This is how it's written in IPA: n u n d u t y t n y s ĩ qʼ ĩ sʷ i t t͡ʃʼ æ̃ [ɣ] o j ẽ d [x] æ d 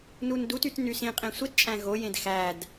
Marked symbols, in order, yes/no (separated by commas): yes, yes